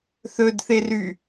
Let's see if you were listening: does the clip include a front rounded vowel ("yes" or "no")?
yes